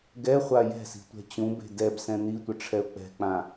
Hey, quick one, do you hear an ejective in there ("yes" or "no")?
no